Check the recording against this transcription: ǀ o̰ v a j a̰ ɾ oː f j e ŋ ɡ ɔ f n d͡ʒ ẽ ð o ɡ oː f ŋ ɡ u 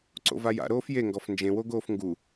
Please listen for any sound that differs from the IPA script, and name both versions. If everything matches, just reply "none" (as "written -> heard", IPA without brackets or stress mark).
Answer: ð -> w